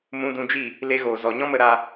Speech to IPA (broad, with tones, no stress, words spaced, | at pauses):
mũ˧dũ˧d͡ʒi˦˨ | le˦ɣoː˨ zɔ˨ɲɔ̃˦mə˧ ɾa˧